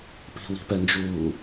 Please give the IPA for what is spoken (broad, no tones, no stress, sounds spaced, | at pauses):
p i̤ w i̤ p ɛ n d͡ʒ uː